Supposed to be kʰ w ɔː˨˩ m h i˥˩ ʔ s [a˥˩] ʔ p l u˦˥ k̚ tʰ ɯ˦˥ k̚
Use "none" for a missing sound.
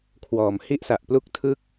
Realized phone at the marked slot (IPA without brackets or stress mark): a˨˩